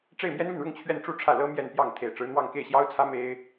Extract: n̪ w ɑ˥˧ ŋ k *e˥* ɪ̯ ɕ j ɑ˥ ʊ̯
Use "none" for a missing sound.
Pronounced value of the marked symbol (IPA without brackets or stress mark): e˥˩